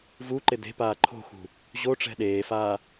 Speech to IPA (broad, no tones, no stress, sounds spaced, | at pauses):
v u ǃ ɪ d e̤ p aː ǃʰ o̤ x ṳ | ʑ o ʈ͡ʂ ɛ̤ ɗ eː f aː